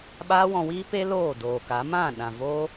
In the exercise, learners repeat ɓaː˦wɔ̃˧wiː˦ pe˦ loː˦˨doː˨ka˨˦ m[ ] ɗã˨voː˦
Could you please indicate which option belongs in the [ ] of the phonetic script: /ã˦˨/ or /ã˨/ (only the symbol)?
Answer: ã˦˨